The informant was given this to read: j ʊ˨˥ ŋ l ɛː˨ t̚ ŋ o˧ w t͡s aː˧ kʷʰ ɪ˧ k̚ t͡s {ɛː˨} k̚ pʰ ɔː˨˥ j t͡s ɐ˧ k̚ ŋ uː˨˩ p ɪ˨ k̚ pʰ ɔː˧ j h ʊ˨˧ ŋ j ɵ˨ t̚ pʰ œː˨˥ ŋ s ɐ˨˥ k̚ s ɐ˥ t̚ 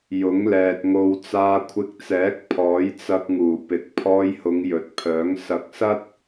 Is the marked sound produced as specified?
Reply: no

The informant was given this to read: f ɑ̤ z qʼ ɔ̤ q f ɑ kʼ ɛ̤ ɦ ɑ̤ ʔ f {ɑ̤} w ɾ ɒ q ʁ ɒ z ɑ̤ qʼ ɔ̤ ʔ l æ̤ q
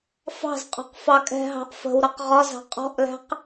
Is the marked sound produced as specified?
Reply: no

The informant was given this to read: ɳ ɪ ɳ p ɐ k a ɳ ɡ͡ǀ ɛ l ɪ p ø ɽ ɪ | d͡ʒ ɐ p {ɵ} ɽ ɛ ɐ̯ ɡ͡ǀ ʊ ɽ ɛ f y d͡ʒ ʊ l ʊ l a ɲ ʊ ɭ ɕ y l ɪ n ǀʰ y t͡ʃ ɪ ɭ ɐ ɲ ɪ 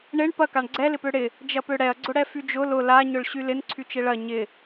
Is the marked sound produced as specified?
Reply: no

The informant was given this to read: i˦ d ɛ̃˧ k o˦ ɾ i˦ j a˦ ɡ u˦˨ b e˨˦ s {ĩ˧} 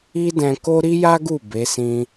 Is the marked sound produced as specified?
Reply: yes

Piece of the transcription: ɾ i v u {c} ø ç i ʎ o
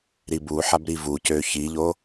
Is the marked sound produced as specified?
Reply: yes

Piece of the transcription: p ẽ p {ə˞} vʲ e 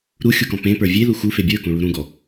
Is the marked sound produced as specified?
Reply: yes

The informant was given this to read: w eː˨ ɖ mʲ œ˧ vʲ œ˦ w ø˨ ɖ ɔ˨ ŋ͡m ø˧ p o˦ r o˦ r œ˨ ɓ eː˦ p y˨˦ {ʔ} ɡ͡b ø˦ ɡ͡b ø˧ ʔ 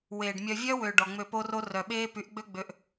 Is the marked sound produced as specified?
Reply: yes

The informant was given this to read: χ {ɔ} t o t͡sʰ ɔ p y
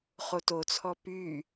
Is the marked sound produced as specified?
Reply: no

